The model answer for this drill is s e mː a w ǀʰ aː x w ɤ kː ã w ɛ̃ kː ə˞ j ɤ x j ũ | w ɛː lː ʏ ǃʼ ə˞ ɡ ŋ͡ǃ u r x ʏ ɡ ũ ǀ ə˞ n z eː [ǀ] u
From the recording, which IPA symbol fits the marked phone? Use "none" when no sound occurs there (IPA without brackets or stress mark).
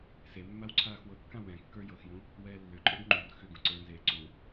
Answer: ǀ